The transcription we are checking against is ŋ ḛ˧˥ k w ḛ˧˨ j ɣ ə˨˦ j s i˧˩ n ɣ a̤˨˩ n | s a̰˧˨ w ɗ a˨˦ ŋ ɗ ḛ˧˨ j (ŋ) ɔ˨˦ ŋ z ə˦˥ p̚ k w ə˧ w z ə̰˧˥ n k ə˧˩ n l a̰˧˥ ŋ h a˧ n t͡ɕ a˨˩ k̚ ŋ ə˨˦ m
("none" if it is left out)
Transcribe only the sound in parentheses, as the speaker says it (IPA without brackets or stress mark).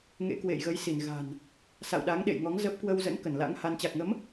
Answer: ŋ